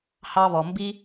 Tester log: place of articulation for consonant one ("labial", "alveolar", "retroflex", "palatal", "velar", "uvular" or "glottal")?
glottal